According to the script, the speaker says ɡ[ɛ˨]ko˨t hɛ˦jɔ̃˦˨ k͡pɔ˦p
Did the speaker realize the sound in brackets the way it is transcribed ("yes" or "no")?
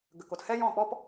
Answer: no